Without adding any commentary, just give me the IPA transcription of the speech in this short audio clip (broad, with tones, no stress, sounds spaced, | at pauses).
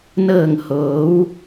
n ɤː˧˩ ŋ h oː˩˧ w